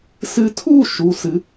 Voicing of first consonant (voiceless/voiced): voiceless